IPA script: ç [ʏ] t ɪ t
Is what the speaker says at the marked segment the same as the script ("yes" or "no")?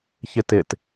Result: no